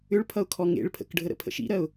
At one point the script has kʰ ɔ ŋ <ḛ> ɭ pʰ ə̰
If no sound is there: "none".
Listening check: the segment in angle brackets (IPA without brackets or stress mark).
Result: ḛ